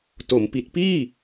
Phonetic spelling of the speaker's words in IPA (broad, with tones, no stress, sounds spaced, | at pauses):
t o˩˦ m p i˨˩ t̚ p iː˥˩